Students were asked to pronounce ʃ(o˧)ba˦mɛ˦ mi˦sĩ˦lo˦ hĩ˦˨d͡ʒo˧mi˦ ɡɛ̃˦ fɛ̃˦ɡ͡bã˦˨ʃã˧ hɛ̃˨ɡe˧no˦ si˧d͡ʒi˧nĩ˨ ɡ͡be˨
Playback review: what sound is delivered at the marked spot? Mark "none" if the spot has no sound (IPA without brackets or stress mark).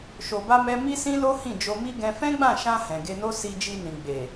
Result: o˧